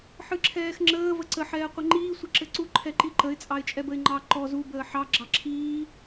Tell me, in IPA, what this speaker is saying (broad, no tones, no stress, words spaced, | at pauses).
ħɨǁʰɛːxŋ͡ǁəː vəǀə ħɛːqʷɘŋ͡ǃiː sʷɘǁɘǀu ǃʰɛǃiǃəɪ̯ t͡sʼɑɪ̯t͡ʃʼɛbəɪ̯ŋ͡ǃɑ ǃɔ zu bəːħɑ ɡ͡ǁɑǁʰiː